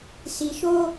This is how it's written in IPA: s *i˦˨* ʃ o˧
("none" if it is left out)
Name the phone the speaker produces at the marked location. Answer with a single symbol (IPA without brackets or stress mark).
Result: i˨